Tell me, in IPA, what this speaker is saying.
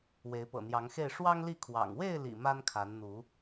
w e˨˦ ɪ̯ p ɤ̰˨˩ n̪ j ɑ˨˦ ŋ x e˥˨ ɪ̯ ʂ w ɑ˦ ŋ l i˥˨ kʰ w ɑ̰˨˩ ŋ w e˥˨ ɪ̯ l ḭ˨˩ m a˦ n kʰ a˨˦ n n̪ u˨˦

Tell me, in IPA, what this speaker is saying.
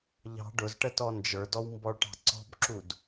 ʎ ɑ̤ ɖ ʊ z ʈ ə t ɔ n d͡ʒ ə˞ d ɔ w m b ɔ ɭ ʈ ɑ̤ ǀ ɔ̤ b ǁ u d

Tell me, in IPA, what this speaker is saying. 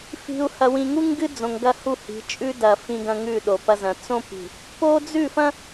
f i̤˨ u̯ h ɐ˨ w ĩ˨ ŋ u˦ ŋ ɡ ɨ˦ d͡z õ˨ ŋ ɡ ɐ˦ h u˦˨ h i̤˨˦ t͡ʃʼ ʉ˦ d ɐ˨ f ĩ˨ ɡ ɐ̃˨ ŋ ʉ˦˨ ɗ o˨ p ɐ˦ z ɐ̃˨ t͡s õ˦ p i̤˨ | p o˦ d͡z ʉ˦˨ f ɐ̃˦

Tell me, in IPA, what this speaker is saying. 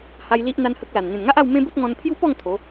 h a˧ j l i˦ ʔ n̪ a˦ n h ə˦ k̚ l a˨˩ n n̪ ẽ˨˩ n ŋ a˦ ʔ a˥˧ w m ẽ˦ b ə˦ t̚ ŋ ɔ̃˧ n pʰ j u˦ p ɔ˥˧ ŋ t̪ʰ o˨˦

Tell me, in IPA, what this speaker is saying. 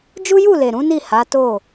d͡ʒ u˦ j u˦˨ l e˨ ɾ ũ˨˦ n i˦˨ h a˨˦ t o˦˨

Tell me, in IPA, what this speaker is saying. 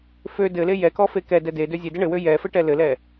f ø d ɘ l e j ɛ k ɔ f e k ɛ d ɛ d e d ø zʲ e d ɘ ɳ ɘ w ø j ɛ f ɘ ʈ ɛ l ɘ l ɛ

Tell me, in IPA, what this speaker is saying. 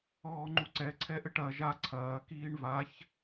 ɔː ŋ͡ǃ u ǀ ɛ ǀʰ ɛ ʔ ɘ ʈ ɐ ʒ a ǀʰ ɐː k iː ɳ v a ç

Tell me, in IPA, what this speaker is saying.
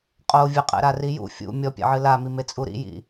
qʼ o vʲ ɘ qʼ ɛ̰ ɾ a r i j ṵ fʲ ṵ mʲ ɔ pʲ ɛ̰ ʕ ɨ l a m i m e t͡sʼ u ɾ ḭ j ḭ

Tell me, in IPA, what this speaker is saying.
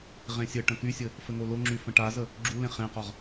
ʁ ẽ sʲ ɘ ʈ ə̃ k y sʲ ɘ | f ɘ ŋ o l o ŋ͡ǁ y f ə̃ ʈ a z ə | ɡ͡ǁ u l ẽ χ ẽ q ɒ ʁ

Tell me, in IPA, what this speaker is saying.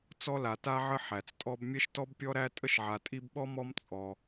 t͡s ɔ˦ l a˩ t a˦ ʕ ə˦ ħ æ˩ t͡s tʼ ɔ˥ b mʲ ɛ˥ ʃ t ɔ˥ b pʲ ɔ˥ ɾ æ˥ tʼ ə˥ ʃ ʕ a˨ tʼ i˦ b ɓ ɔ˥ m ɔ˦ m t͡sʼ ɔ˩

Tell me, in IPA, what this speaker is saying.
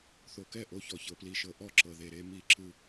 θ o˨ k ɛ˦˨ ʔ o˨˦ ç ɔ˨ ç ɤ˨ p l i˨ ʃ ɤ˨ ʔ ɔ˦ ǁ ɤ˨ ð e˨ ɾ e˨˦ m i˦ ǁ ɯ˦

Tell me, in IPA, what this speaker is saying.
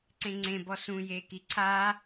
ǀ ẽ ŋ͡ǀ ẽ b ɔ s ũ j e k i ǀʰ a

